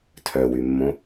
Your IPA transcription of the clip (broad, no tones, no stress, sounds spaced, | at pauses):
tʰ œ w y mː õ